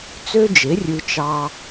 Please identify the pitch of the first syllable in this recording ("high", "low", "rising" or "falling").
high